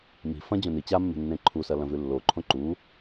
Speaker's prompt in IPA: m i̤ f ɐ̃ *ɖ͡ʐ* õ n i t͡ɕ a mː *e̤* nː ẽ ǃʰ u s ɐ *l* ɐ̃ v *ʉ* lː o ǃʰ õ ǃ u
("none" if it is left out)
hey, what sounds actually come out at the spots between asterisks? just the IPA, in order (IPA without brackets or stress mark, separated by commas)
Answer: d͡ʑ, e̤, l, ʉ